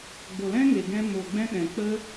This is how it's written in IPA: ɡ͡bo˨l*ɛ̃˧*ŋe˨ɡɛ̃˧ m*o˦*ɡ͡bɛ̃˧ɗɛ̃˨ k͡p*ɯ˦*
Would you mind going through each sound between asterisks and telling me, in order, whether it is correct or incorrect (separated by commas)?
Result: incorrect, incorrect, incorrect